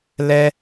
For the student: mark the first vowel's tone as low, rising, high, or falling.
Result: high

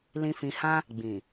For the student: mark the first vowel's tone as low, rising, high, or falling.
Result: low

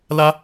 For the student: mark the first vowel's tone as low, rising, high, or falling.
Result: high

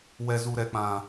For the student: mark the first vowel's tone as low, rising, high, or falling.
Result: low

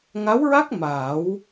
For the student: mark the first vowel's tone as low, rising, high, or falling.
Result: rising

